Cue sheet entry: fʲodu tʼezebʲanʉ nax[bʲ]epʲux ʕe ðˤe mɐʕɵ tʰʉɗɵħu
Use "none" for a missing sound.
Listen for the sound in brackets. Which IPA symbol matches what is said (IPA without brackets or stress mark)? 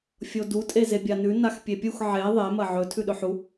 pʲ